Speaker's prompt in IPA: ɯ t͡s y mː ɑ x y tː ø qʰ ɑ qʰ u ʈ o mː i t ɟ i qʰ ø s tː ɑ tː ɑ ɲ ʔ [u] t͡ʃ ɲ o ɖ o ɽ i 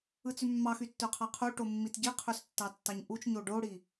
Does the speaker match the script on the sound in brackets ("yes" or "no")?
yes